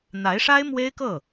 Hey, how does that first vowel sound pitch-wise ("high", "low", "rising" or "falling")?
rising